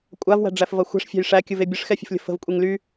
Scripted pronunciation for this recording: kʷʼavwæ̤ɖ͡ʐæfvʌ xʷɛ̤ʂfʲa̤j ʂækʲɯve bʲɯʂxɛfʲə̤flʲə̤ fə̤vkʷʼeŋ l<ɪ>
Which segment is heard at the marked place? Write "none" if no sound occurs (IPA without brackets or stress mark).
y